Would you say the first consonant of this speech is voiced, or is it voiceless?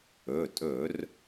voiceless